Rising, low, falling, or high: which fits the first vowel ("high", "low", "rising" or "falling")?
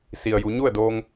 low